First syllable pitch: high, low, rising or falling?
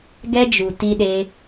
high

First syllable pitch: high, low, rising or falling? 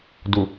low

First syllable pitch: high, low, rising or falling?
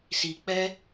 low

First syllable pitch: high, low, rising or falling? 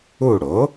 falling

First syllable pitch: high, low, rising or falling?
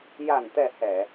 low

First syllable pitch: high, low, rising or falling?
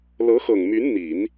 rising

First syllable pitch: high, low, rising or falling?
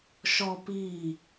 high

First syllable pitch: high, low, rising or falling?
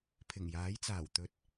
low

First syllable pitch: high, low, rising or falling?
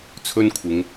high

